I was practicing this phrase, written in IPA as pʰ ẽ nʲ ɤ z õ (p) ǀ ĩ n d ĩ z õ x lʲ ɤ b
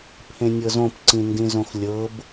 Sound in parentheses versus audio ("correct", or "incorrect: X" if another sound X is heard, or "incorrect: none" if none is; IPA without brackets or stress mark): correct